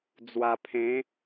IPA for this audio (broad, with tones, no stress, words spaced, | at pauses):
d͡zwa˧pʰẽ˨˦